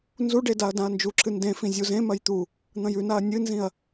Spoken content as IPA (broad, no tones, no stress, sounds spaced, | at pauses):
n z u ɖ e d a ɐ̯ d ã ɐ̯ n d͡ʒ u ǁʰ ɨ n d ẽ f ĩ zʲ u z ẽ m ɐ j t̪ u | n̪ ɐ̃ j ʉ n a ɐ̯ nʲ ɨ n z ĩ ɐ̯